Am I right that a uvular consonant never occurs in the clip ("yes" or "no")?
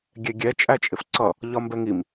yes